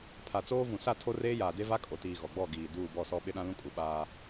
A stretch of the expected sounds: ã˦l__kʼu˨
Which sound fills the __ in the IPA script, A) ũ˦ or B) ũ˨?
A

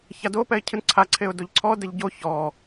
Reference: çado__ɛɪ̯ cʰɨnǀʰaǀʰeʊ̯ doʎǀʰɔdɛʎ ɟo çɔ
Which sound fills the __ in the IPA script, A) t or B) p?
B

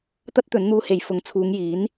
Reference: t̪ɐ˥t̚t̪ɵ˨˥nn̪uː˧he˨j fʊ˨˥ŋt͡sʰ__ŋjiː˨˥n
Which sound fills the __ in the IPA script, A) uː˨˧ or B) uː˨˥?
A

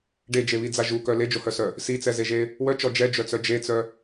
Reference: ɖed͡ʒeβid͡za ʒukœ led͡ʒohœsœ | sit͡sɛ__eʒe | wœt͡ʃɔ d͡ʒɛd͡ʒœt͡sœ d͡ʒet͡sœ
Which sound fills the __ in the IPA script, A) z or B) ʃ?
A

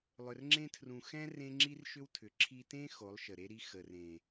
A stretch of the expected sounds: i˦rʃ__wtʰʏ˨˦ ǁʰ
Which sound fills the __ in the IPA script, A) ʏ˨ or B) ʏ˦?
B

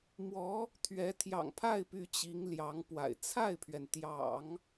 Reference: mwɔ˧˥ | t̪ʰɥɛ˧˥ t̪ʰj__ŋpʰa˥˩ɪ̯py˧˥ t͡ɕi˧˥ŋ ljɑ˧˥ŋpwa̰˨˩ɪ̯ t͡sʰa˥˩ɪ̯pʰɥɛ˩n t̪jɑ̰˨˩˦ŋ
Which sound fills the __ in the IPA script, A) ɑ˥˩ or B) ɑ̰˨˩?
B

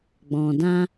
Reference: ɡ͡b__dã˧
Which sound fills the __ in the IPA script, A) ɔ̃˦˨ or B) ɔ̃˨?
B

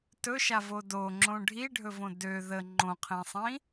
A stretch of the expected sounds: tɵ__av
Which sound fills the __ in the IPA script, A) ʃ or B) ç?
A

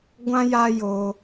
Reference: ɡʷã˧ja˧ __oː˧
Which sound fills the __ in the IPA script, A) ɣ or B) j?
B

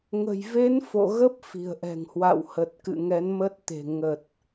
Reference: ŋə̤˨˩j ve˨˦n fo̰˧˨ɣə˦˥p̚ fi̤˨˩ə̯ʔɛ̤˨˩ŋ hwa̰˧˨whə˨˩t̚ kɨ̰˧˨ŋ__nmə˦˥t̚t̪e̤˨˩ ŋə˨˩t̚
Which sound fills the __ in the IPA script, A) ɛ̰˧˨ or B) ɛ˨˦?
B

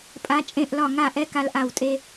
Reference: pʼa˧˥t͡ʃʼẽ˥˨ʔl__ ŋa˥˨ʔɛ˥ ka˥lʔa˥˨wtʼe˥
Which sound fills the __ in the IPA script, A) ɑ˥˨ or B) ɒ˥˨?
B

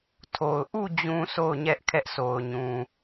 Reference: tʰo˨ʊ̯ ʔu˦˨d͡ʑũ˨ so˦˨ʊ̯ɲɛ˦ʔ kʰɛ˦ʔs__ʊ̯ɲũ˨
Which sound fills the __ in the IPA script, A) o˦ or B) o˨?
B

